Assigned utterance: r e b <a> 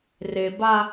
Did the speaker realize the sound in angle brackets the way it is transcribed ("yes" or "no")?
yes